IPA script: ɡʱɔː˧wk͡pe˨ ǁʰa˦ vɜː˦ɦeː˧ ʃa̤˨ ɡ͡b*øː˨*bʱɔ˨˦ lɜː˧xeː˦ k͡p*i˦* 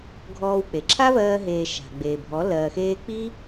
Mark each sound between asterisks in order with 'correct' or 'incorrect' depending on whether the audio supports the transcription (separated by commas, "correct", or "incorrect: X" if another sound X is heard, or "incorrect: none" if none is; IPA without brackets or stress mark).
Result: incorrect: eː˨, correct